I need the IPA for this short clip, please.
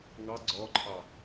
ŋɑ ɡ͡ǀɔǃʰɑ

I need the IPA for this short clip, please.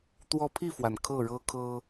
t̪wɔ˦ pʰi˥˨fwa˩n kʰɤ˥˨ɻɤ˦kʰɤ˦

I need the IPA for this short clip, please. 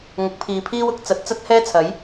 ŋʊ˨˥k̚pʰiː˨pʰiː˥w ʊ˨˥k̚ t͡sɐ˨˥t̚t͡sɐ˥t̚hɛː˥ t͡sʰɐ˨˥j

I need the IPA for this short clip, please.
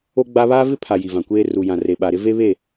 o˦ɡ͡ba˦ βaː˦vɪ˦pʰa˨ ji˨vã˨kʷeː˦ ru˨jã˨ re˨ ɓa˨ɾɪ˦ ve˦βe˦˨

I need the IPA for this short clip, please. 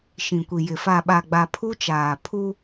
ʃĩ˨kʷi˨jɪ˨ fa˨ɓa˨ɡ͡ba˨ pʰu˦t͡ʃaː˨ pʰu˦

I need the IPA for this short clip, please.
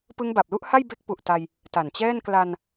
pɯ˦˥ŋba˨˩p̚lu˥˩ʔha˥˩j be˦˥k̚pu˨˩ʔta˧j | ta˨˩nt͡ɕɛː˥˩n kla˧n

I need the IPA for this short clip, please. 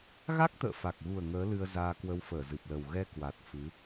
ɣa˦˥k̚t̪ə̰ː˧˨fa˨˩k̚ɣu˨˩ə̯ ŋəː˨˦ lɨ˧ə̯zaː˧ kwə˧wfəː˧˩zɨ˨˩p̚lə˨˩w ɣɛ˧kwa˨˩t̚ fɨ˨˦

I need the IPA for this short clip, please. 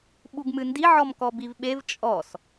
ɓuɡmɨndi ʕɔmkɔbivɓev t͡ʃʼɔs

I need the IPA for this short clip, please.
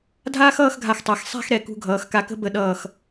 dʱaː˥xʌː˥˧xɡʱa˧˩xtˤæ˩˧x sˤæ̤˥˧xɾɛ˧˩kṳ˧ ɡʱʌː˩˧xka˧kə̤˥ bə˧ɗʌː˧˩x

